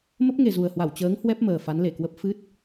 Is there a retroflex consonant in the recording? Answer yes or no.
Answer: no